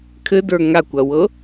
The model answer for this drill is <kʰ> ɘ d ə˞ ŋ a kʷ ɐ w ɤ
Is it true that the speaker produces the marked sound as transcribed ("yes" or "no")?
yes